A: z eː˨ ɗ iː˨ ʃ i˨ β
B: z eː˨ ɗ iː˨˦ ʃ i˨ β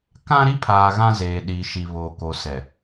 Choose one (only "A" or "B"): A